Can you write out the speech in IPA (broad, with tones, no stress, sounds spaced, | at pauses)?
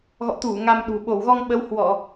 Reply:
ɣ ɔ̰˧˨ t̪ u˧˩ ŋ a˧ m ɗ ṳ˨˩ ɓ o˧˩ w ɣ ɔ˧ ŋ ɓ ə˨˦ w h w ɔ˧˩˨